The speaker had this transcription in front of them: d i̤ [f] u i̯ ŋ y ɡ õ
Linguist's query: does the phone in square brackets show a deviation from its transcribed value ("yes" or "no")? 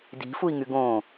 no